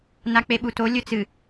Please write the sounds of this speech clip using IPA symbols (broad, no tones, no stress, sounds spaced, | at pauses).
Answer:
n a k͡p e ɓ u t o lʲ ɵ t͡s ɨ